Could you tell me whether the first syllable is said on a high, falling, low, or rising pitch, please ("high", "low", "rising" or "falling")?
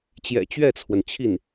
low